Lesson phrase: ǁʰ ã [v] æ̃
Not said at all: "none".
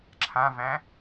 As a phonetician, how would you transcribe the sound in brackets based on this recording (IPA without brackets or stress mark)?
v